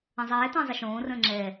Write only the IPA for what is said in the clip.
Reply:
ə̃zˤɛː tə̃ːzˤəʃõː rə̃ːŋ͡ǁɛ

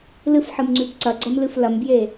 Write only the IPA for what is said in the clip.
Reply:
lɨfħɨmŋ͡ǀʉb ǀɐɡ͡ǀɐmlɨf lɐmbje

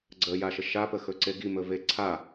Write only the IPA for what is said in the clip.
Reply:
ɡ͡ǀəjaʃə ʃapəxɵǀe ɡimɵve ǀʰa

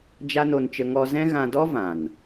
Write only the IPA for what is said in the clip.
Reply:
d͡ʒa˦no˧nt͡ʃə˧ ŋɔ˧zɛ̃˦ ɣã˧dɔ˦vã˨n

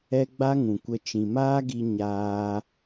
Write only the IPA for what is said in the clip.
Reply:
ɛ˦ɡ͡ba˦ŋũ˨kʷə˧ t͡ʃĩ˨maː˦ɡi˧ ɲaː˧

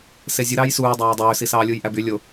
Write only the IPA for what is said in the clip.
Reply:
sezʲɯ ɾɑːjsuːdˤæː dˤøːsisɑːlʲuːj ʔæby lʲo

